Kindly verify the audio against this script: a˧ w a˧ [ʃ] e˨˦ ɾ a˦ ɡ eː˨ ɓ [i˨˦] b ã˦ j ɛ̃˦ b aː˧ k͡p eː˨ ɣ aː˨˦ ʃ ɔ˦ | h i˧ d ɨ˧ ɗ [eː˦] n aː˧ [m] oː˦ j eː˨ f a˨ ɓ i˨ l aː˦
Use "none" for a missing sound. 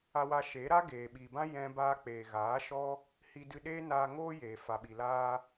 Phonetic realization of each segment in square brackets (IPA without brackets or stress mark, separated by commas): ʃ, i˨, eː˦, ŋ